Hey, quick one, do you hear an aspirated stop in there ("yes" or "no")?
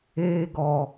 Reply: no